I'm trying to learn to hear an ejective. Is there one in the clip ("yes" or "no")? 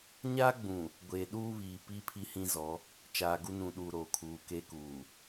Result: no